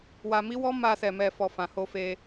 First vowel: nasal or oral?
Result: oral